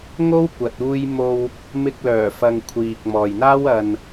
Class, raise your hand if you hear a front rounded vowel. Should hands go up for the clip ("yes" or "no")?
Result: yes